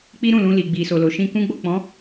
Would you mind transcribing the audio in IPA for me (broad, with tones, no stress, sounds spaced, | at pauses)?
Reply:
k͡p i˦ ɾ ũ˦˨ l ũ˧ l i˨ ɡ͡b i˨ s o˨ l o˨ ʃ ĩ˧ k ũ˦ ɡ͡b o˦˨ k͡p ɔ̃˨˦